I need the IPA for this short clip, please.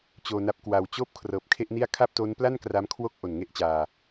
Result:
t͡ɕ oː˧ n a˦˥ p̚ k w a˧ w t͡ɕ oː˥˩ p̚ kʰ r ɤː˨˩ p̚ kʰ e˥˩ ʔ n i˥˩ a̯ kʰ a˥˩ p̚ t o˦˥ n p l a˥˩ n k r a˦˥ m kʰ w o˥˩ k̚ ʔ o˨˩ n ŋ e˥˩ ʔ t͡ɕ aː˧

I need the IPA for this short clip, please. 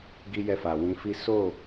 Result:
ɡ i˦ j ɛ˦˨ f a˨ w ĩ˨˦ f i˦ s o˦˨

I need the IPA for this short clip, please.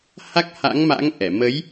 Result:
h a˦˥ k̚ h a̰˧˥ ŋ m a̰˧˥ ŋ ʔ ɛ˧˩ m ə˨˦ j

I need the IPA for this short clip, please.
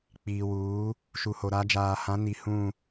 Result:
k͡p iː˨ w uː˨˦ | ʃ u˨ h o˨ ɾ a˨˦ d͡ʒ aː˨ h ã˨˦ n i˨˦ h ũ˦˨

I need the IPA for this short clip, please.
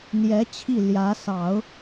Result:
n̪ j ɛ˧˥ t͡ɕʰ i˥˩ l j ä˧˥ s ɑ˨˩˦ ʊ̯

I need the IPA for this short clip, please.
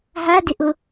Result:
ɦ a d ɪ ʔ ʊ

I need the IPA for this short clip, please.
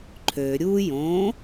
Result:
ǃʰ ø ɾʲ u j õ

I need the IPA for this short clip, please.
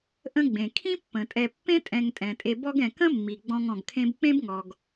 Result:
ʔ ə̃˦ ɡ͡b ẽ˩ kʰ ĩ˥ pː ə̃˩ tʼ ɛ˨ pː ẽ˥ tʼ ɛ̃˨ ŋ tʼ ɛ̃˩ tʼ e˨ b ɔ˥ ɡ ɛ̃˨ k ə̃˥ mː i˩ ɡ͡b ɔ̃˦ ŋ ɔ̃˨ ɡ kʰ ẽ˥ b k͡p ẽ˥ b ŋ ɔ˩ ɡ

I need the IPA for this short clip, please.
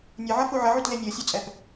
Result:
nʲ ʌ ʕ ʌ f u ʕ ʌ ʕ u t l e nʲ o sʲ u t͡sʼ ɛ p

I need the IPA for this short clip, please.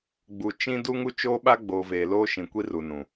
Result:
ɡ͡b u˨ t͡ʃ ĩ˦ d u˦ ŋ u˦ t͡ʃ oː˦ ɓ a˦ ɡ͡b oː˨ v eː˨ l oː˦ ʃ ĩ˨ kʷ i˦ r u˨ n ũ˨

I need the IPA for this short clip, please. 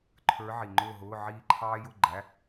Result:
ǃʰ ə˞˧˥ ʕ i˨˩ ŋ͡ǃ ʊː˥˧ ɦ ʊː˧˥˧ ʕ iː˥˧ ǃʰ ɑː˥ j ʊ˥˧ ɡ͡ǃ æ˧˥˧

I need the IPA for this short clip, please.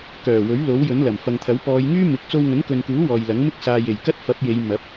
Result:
k œː˨˩ w ɵ˨˥ ɥ l o˨˥ w j ɵ˨˥ n l ɐ˨˩ m f ɐ˨ ŋ t̪ʰ ɐ˨˥ w p ɔː˨˧ j ŋ yː˥ m ɪ˨˥ k̚ t͡s o˧ w ŋ ɵ˨˥ n k ɵ˨ n k uː˨˥ w ɔː˨ j l ɐ˨˥ ŋ m ɪ˥ k̚ s aː˨ j e˨˩ j k ɐ˥ t̚ f ɐ˨˥ p̚ j e˨˧ j m ɐ˨˥ p̚

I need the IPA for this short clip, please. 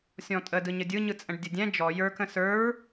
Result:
sʲ ɔ̃ tʼ ə d ɯ ɲ ə dʲ ɯ ɲ ɯ t͡sʼ ə̃ ɖ dʲ ə dʲ ɛ̃ d͡ʒ ɔ j ə˞ k ə̃ s ə˞ ɹ

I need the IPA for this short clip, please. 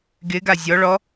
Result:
ɡ ɪ ɡ a zʲ ɔ ɭ ɔ

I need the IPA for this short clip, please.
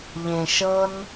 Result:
ʎ ẽ ʃ ɤ n

